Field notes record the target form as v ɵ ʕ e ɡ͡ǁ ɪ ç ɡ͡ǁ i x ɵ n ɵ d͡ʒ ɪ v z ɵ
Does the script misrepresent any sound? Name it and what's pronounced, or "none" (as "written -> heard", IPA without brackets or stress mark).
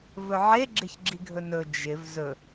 x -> ɡʱ